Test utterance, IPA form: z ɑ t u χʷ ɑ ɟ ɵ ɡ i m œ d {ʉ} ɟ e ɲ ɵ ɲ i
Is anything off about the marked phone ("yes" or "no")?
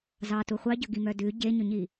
no